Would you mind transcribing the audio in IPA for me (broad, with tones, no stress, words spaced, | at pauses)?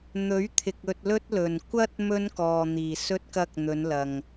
n̪ɵ˨˥ɥt̪ʰɪ˨k̚ ɵ˧t̚lɵ˥t̚lɵ˨n kʷɐ˥t̚ mɵ˥nkɔː˨n̪iː˨˩sɵ˥t̚ kɐ˥k̚n̪ɵ˨˧nlɐ˨ŋ